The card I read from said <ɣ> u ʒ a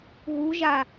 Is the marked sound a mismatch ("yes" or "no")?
no